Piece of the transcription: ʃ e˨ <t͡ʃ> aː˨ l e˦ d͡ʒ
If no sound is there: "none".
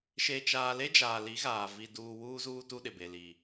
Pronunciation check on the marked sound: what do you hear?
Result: t͡ʃ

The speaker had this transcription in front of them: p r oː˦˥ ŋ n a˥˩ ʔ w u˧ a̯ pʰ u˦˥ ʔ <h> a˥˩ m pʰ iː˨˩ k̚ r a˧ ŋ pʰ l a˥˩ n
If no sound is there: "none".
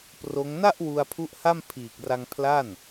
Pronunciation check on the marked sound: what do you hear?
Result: h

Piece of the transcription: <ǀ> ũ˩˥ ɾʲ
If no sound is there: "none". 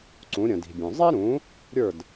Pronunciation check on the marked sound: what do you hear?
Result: ǀ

